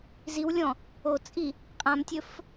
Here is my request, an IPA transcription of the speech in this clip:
ziwlʲɔ̃ | ot͡sʼi | qʼãmtʲɵf

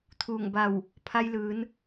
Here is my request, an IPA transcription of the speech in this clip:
t̪ʰuː˧˩ŋba˧˩w | pʰa˧jlɯː˩˧n

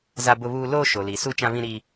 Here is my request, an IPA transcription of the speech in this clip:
za˦bʊ˦βuː˦ loː˦ʃo˨li˨su˦ t͡ʃã˦βĩ˦ ɾi˦

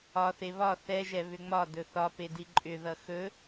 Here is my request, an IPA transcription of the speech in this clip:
ɒθe βɒ θɛʒɛ βʏŋ͡mɒ dɵθɒpedi ǃʼʏðʌ xɵ

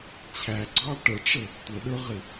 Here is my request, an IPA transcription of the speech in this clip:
t͡ɕʰæɡ͡ǀɑ ʈəʈ͡ʂə | tʷəɗə˞ʁɪ

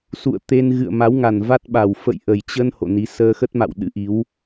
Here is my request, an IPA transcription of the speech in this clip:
sṵ˧˨ə̯t̪e˧n ɣɨ̰˧˨ə̯ma˨˦wŋa˨˩n va˦˥t̚ɓa˨˩w fə̰˧˨jʔə˨˩jt͡ɕə˧n ho̰˧˨ni˨˦ səː˧xə˦˥t̚ma̰˧˨w ɗɨ̰˧˥ʔi˨˦w

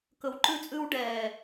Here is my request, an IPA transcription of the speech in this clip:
kɵ˨wǃʉ˦t͡sʼʉ˦w ɖɛ˨

